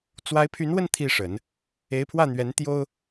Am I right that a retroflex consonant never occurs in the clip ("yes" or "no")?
no